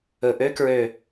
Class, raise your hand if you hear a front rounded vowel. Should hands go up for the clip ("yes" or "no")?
yes